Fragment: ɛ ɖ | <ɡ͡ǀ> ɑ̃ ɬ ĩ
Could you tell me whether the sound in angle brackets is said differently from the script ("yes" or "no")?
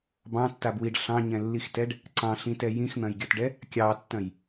yes